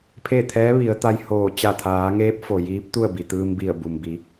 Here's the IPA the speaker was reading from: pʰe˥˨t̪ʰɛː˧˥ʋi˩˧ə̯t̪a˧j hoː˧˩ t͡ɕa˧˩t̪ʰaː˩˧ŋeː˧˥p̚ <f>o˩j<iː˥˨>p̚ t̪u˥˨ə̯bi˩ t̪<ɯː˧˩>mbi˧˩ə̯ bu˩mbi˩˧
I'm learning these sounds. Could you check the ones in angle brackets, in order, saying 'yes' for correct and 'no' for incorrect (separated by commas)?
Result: yes, no, no